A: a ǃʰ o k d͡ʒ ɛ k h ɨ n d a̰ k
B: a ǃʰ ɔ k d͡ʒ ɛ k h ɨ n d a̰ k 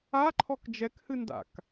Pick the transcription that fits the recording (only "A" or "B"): B